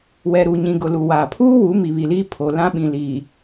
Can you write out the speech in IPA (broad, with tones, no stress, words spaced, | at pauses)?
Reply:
wɛ˨ɾu˨ɲĩ˨ ɡʊ˨lu˨waː˨ pʰuː˦ wu˨˦ mi˨βi˨liː˦ pʰo˨lã˦ɓĩ˨ liː˨